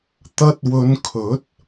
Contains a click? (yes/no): no